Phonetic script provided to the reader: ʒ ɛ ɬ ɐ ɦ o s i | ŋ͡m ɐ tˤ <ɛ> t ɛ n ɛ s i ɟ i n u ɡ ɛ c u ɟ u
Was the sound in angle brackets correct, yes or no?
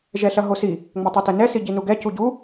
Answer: yes